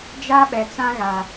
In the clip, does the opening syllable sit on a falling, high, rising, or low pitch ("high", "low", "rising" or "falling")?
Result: high